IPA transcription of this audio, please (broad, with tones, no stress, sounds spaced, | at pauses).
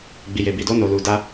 ɡ͡b i˨ j e˨ b i˨ d o˧ n o˨ l u˨ d a˧